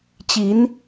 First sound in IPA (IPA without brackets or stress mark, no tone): t͡ɕ